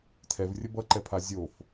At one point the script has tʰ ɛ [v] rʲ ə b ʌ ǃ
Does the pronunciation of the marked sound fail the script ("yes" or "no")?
no